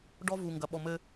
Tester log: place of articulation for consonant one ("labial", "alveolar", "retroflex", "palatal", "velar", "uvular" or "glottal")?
retroflex